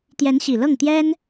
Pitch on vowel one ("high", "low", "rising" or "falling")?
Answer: rising